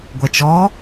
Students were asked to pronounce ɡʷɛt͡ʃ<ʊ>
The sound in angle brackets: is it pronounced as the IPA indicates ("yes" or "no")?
no